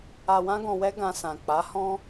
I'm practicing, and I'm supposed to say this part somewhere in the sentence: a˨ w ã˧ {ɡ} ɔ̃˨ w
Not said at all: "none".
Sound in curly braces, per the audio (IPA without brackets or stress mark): ɡ